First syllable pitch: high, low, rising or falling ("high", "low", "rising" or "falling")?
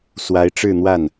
rising